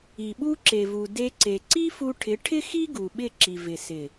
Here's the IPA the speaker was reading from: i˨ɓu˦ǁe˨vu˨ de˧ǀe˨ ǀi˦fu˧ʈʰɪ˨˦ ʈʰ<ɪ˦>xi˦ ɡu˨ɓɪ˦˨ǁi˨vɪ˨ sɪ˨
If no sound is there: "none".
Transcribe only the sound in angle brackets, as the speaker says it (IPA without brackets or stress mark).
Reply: ɪ˦